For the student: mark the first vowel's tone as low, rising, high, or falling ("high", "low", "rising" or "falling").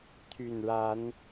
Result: low